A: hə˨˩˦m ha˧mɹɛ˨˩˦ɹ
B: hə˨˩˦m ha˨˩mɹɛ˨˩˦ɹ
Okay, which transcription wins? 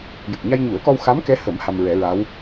A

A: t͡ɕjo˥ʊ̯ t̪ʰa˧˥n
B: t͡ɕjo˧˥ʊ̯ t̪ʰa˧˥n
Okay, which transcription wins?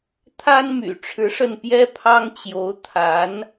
B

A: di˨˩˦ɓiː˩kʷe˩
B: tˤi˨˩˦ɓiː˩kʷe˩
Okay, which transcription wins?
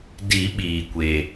A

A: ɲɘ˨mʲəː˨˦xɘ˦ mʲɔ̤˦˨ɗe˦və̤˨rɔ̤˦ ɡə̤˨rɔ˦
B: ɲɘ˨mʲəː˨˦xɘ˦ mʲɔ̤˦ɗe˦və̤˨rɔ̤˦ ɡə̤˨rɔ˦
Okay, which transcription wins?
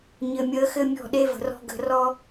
A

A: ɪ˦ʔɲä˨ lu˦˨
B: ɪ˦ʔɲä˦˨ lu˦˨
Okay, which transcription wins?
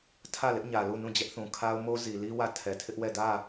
A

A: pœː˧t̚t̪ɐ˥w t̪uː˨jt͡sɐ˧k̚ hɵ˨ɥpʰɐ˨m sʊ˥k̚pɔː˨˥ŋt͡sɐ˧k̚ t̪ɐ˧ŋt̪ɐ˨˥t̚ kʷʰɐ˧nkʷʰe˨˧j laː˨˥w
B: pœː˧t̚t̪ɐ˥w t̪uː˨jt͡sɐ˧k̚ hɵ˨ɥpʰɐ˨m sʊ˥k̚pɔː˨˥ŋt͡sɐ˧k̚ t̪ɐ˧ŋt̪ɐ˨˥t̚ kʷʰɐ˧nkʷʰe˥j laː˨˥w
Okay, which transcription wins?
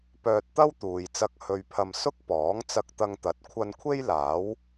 B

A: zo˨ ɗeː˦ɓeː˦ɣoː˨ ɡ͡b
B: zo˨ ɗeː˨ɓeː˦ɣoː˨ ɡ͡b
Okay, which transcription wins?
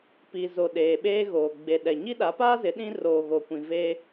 B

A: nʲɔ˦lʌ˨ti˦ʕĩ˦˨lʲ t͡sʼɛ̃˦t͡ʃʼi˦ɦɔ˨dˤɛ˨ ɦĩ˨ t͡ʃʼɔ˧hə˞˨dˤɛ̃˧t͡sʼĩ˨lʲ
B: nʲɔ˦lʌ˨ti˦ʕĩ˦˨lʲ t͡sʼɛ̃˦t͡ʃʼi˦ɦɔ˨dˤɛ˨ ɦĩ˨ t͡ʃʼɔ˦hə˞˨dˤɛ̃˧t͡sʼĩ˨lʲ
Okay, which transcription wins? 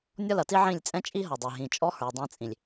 B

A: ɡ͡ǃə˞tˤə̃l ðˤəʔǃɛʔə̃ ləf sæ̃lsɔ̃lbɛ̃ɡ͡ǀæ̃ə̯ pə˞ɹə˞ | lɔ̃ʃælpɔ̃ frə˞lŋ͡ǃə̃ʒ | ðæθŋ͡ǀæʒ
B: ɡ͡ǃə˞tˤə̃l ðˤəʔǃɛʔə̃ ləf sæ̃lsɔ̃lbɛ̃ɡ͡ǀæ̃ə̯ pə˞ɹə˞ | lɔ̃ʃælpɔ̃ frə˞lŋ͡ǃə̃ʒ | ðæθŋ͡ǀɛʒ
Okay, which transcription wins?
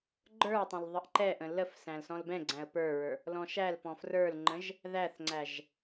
A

